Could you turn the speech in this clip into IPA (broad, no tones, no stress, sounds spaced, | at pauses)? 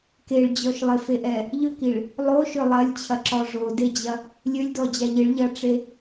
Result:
k e ɭ d͡ʑ ɔ ʃ lˠ ɪ f e ʔ ɛ | ʎ ʏ k i ɭ | lˠ o ʃ ʏ lˠ ɐ lʲ t͡ɕʰ ɐ ǁ ɔ ʐ o d e d͡ʑ ɐ | lʲ ø lʲ d ɔ d͡ʑ a ʎ ɪ ɭ ʎ ɐ ʈ͡ʂ e